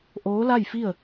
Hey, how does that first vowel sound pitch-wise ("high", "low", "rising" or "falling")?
rising